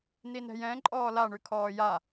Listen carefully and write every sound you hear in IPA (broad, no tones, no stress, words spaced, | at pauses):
ninɛ̤jɛ̃ ǃʼɔːla ɳʉkʰɔːja